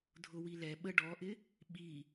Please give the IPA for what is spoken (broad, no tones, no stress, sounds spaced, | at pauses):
dʱ ʊ w i l ɛ ɓ ə ɖ ɔ ʔ ɪ | ɓ i